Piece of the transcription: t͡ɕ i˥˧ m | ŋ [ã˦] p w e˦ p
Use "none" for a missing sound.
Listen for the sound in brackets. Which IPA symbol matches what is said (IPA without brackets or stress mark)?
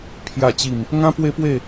ã˦